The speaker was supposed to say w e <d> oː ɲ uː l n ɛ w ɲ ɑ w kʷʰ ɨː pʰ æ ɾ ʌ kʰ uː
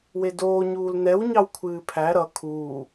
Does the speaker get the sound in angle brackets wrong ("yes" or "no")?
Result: no